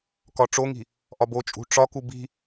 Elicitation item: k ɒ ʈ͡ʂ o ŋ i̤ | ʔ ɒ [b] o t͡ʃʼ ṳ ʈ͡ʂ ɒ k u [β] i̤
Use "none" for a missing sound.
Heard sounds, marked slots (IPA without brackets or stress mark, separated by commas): b, b